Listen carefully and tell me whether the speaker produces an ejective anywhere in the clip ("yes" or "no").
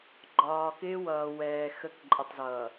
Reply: yes